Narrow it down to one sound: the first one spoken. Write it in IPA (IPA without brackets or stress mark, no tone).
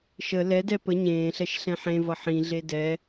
ʃ